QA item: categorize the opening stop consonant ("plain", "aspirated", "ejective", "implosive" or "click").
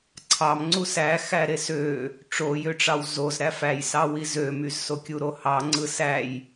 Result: click